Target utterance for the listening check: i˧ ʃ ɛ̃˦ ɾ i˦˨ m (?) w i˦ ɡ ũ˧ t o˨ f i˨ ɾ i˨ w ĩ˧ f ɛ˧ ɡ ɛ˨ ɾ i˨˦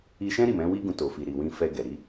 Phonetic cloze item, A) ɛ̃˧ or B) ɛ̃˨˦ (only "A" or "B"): B